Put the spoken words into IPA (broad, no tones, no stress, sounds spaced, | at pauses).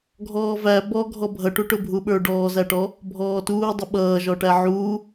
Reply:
ɡʱ ɔː v æ b ɔ ɡʱ ɔ bʱ ʌ ʈ u ʈ ʊ bʱ u ɓ ə˞ ɖ ɔː z æ ʈ ɔ | bʱ ɔː t uː dˤ ʌ ɓ ʌː ʒ ɔ ʈ æ ʕ uː